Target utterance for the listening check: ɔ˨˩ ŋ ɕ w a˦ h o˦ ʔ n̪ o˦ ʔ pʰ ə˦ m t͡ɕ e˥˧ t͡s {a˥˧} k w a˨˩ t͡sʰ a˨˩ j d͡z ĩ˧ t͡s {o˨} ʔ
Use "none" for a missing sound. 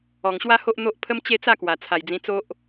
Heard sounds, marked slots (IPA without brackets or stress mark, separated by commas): a˥˧, o˦